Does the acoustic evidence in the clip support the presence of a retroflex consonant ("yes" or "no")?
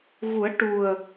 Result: yes